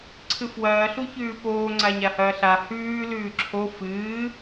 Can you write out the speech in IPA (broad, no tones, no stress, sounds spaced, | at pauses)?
ǀʰ ɨ f w ɐː ɬ u ç ʉː p oː ŋ͡ǀ a ɲ a h ɐː ɬ a h ʉː l ʉː ǁʰ o f ɨː